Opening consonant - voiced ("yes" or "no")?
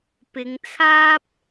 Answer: no